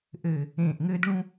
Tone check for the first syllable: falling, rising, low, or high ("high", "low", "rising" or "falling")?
low